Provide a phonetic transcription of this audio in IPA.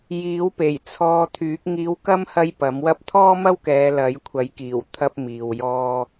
j iː˨˥ w p e˨˩ j t͡sʰ ɔː˧ t̪ʰ yː˨˥ k̚ ŋ iː˧ w k ɐ˥ m h ɐ˥ j p ɐ˨˥ m w ɐ˥ p̚ t̪ʰ ɔː˥ m ɐ˥ w k ɛː˨˧ l ɐ˨˥ j kʷʰ ɐ˨˥ j k iː˨˩ w t̪ʰ ɐ˥ p̚ m iː˨ w j ɔː˥

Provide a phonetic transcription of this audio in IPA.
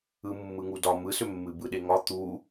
ɯ mː ɯ ŋ u d ɒ m ɯ s ʏ mː ɨ b ɯ ɗ e ŋ ɒ t̪ u

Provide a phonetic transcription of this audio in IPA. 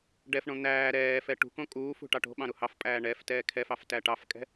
ɖ ɛ f ɳ õ n̪ æː ɾ ɛː f ɛ ʈ ṳ k õ kʼ uː f ṳ ʈ ɑ ʈ o̤ ɓ ɑ̃ ɾ u h ɑ f pʼ æː ɳ ɛ f t ɛː kʰ ɛ f ɑ f t æ ʈ ɑ f kʼ ɛ̤

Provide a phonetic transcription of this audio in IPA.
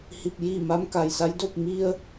h i˧˩ p̚ j i˥˨ m a˧˥ m k a˩ j s a˧˥ j d o˥˨ p̚ m i˧ ə̯

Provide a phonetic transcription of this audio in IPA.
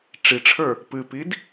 ʈ͡ʂ i ʈ͡ʂʰ ə˞ | p ɨ p i d

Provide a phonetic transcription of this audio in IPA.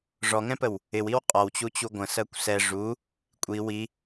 ʐ ɔ ŋ ɛ̃ p ə w | ɪ w i w qʼ ɔ w t͡ɕ u t͡ɕ u ɡʷ ə̃ s ɜ kʷ s ɛ ʐ u | kʷʼ i w i

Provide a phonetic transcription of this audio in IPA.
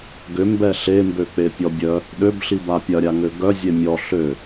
ɡ ʏ m b ɛ ɬ e m b ø k͡p e pʲ ɔ bʲ œ | ɗ ø b ɬ i b a pʲ ɐ ɾʲ a ŋ ø ɡ œ zʲ e mʲ ɔ ɬ ø

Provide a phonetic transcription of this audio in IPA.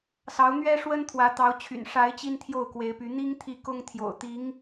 s ɑ˧˥ ʊ̯ n̪ ɥ ɛ˥ ʂ w ə˥ n t̪ʰ w ä˧˥ t̪ ɑ˧˥ ʊ̯ t͡ɕʰ y̰˨˩ n ʂ a˧˥ ɪ̯ t͡ɕ i˥ n t̪ʰ j o˥˩ ʊ̯ k w e˧˥ ɪ̯ p y˧˥ n̪ i˥ ŋ t̪ʰ i˥˩ k ʊ˥ ŋ t̪ʰ j o̰˨˩ ʊ̯ t̪ i˧˥ ŋ

